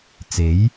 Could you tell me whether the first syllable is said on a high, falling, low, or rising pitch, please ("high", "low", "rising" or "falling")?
rising